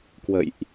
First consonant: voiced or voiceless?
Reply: voiceless